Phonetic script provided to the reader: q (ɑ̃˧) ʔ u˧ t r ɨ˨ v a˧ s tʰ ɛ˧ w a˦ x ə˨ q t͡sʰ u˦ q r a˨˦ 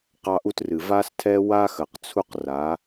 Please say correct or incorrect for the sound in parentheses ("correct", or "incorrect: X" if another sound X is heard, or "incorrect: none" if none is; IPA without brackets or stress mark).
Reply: incorrect: ɑ˧